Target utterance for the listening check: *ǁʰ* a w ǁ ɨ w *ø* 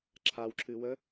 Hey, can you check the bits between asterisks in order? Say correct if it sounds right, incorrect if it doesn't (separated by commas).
correct, incorrect